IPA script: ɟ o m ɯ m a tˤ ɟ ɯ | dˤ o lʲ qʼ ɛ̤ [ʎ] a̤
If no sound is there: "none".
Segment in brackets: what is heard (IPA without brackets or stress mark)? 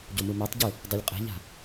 ʎ